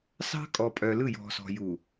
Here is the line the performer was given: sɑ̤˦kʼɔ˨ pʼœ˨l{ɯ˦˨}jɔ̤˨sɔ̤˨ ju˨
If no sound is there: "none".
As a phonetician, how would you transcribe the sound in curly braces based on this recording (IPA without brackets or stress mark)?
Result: ɯ˦˨